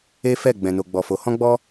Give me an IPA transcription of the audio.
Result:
e˦ f ɛ˦˨ ɡ͡b ɛ̃˨ n o˨ ɡ͡b ɔ˨ f o˨ h ɔ̃˧ ɡ͡b ɔ˧

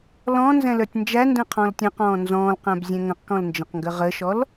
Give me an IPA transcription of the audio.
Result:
l ɔ̃ n z ɛ̃ l ə˞ tʲ n d͡ʒ æ n d ɛ̃ qʰ ɔ̃ l tʲ ə̃ q ɔ̃ː n z ɔ̃ː l q æ̃ b zʲ ɛ̃ ŋ ə̃ q k ɔ̃ l n d͡ʒ ə̃ q ŋ ɡ ə ʁ ə ʃ ɔ l

